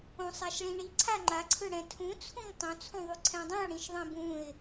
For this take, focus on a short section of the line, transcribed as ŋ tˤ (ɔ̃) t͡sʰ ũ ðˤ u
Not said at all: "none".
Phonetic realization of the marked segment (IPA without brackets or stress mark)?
õ